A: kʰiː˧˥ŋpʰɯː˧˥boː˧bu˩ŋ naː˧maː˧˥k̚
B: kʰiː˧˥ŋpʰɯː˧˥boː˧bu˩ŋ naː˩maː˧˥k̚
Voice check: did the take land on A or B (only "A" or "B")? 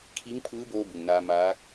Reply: A